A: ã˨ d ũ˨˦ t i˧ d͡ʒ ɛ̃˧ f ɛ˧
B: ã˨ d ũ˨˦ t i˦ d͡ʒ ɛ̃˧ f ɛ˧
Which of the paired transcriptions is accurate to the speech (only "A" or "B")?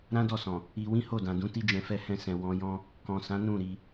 B